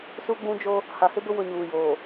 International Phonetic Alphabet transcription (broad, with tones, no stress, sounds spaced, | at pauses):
s u˦ ɡ͡b ũ˦ d͡ʒ o˦ | h a˨ h ɪ˦ b ʊ˦ w ʊ˦˨ ɲ uː˨ j oː˨